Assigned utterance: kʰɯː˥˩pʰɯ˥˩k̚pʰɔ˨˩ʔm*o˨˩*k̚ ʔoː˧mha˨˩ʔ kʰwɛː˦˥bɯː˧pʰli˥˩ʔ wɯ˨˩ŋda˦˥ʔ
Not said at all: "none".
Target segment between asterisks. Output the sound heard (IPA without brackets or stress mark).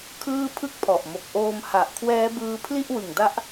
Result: o˨˩